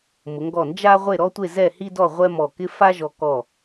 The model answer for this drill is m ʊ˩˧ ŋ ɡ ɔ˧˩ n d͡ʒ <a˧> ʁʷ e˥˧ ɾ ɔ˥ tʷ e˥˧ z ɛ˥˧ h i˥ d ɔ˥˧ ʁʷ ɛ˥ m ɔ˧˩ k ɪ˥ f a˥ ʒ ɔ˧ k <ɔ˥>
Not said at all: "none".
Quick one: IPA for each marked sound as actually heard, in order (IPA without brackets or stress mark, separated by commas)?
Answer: a˥, ɔ˧˩